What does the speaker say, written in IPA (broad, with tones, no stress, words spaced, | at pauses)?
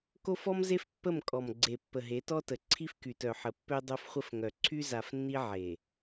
ko˦fɔ˦mze˦f pːə˦˨mkʼɔ˨mɡ͡ǀe˨ pːə˨ɦe˨˦tɔ˦tə˨ ǀʰi˦fky˨tœ˨ħə˨ pːø˦dˤo˦fχʷə˦fŋœ˨ ǀʰy˦za˨fnːi˦ ʕe˨